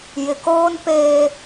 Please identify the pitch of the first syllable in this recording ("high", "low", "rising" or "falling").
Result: low